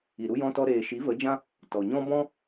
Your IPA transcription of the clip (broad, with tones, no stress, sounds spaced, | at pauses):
i˨ ɾ u˧ j ɔ̃˧ t ɔ˧ ɾ eː˨ ʃ i˨˦ v ə˨˦ d͡ʒ ã˦ | t ɔ˨ ɲ ɔ̃˦ b ɔ̃˦